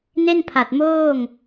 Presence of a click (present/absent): absent